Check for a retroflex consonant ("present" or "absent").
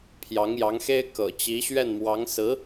absent